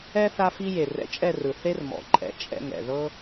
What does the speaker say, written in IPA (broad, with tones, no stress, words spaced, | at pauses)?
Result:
ɛ˦ θa˧fi˧ je˨rɛ̰˧t͡ʃʼɛ˦˨rɯ˨ θe˦rmɔ̰˨ǃʼɛ̰˧ t͡ʃʼɛ̰˦˨ŋɛ̰˨ðɤ˦